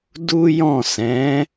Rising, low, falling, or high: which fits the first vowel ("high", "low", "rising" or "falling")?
high